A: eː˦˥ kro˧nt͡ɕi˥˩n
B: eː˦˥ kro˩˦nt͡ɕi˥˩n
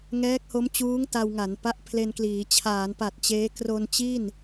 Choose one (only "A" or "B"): A